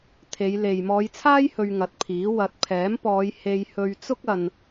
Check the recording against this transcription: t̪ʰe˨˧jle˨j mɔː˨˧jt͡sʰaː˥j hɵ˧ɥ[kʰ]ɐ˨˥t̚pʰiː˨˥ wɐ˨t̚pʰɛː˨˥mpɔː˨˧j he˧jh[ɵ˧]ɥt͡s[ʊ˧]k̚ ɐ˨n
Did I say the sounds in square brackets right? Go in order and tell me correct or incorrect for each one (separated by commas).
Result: incorrect, correct, incorrect